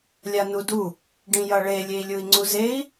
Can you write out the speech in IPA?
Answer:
lʲ a n u d u | ɖ ĩ j ʌ ɭ e lʲ e i̯ lʲ u i̯ ŋ͡ǀ u z e i̯

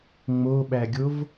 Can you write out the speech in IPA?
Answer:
ŋ͡m o ɓ æ ɡʲ o v

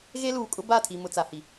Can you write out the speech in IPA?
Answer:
ɣ e˦ l uː˨ kʼ ʊ˦ b a˦˨ tʰ i˨ m ʊ˨ t͡s a˨ h i˨

